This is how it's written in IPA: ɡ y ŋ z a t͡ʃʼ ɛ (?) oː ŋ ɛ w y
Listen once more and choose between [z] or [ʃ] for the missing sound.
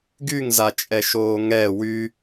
ʃ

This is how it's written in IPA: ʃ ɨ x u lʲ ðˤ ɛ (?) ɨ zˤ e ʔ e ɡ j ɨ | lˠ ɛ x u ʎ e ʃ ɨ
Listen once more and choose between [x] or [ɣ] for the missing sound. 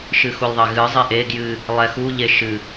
ɣ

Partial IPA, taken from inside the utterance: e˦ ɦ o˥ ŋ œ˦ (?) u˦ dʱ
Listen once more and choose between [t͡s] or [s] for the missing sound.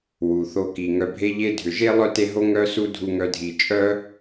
s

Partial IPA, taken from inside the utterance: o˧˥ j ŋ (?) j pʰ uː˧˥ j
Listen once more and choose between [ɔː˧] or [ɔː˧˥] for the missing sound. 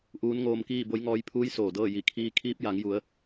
ɔː˧˥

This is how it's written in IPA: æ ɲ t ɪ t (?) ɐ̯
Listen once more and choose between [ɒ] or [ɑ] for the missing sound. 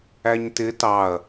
ɑ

